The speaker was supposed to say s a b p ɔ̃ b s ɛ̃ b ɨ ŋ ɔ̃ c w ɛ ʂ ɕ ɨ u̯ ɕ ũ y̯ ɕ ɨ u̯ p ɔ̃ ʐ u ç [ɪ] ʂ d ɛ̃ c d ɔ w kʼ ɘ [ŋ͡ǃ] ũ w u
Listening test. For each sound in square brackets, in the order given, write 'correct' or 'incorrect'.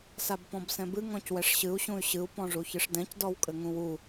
incorrect: ɨ, incorrect: ŋ

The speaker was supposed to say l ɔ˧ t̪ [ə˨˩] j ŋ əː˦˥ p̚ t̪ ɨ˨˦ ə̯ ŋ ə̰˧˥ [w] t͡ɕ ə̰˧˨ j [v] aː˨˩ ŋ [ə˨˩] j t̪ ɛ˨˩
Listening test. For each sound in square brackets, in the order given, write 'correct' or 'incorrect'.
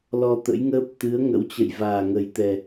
incorrect: ə̰˧˥, correct, correct, correct

